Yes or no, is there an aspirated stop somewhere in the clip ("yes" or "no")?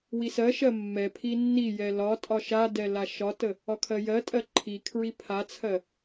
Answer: yes